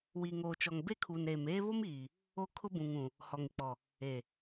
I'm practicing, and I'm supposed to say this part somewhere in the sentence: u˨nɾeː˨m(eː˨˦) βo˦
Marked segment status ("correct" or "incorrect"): incorrect